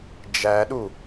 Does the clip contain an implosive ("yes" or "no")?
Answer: yes